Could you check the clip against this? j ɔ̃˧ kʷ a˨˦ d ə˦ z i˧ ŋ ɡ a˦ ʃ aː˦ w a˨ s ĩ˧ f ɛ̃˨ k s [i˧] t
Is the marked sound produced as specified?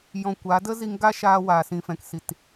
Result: no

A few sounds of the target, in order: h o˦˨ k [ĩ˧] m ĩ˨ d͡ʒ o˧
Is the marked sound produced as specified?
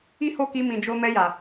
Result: no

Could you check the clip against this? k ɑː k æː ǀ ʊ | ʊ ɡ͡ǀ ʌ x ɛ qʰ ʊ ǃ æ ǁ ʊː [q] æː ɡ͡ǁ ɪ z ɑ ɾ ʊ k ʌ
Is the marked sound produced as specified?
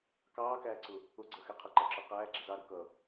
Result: yes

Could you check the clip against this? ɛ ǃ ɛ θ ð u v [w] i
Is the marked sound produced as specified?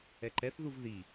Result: no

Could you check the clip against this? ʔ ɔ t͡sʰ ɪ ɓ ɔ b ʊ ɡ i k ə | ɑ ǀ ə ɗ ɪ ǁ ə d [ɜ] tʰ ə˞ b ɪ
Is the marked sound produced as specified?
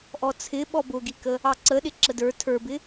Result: no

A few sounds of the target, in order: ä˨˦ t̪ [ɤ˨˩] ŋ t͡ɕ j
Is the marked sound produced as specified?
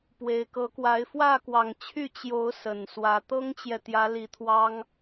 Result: no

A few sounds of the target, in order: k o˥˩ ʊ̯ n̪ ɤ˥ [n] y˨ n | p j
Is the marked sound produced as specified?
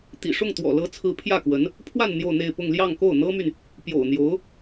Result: no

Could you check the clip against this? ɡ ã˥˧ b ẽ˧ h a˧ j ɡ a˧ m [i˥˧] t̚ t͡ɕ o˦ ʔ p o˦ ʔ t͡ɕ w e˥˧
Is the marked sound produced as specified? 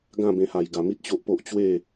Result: no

